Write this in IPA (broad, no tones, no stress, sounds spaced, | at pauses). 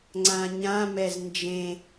ŋ͡ǀ ã ɲ ã m ɛ z n d͡ʒ ẽ